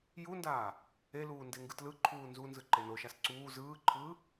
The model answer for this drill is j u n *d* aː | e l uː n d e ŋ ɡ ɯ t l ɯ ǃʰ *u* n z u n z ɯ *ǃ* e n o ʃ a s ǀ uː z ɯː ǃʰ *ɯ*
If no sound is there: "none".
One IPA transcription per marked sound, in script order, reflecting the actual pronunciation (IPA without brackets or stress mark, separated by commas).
d, uː, ǃ, ɯː